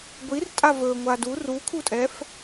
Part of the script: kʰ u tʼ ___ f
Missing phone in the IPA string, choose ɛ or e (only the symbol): ɛ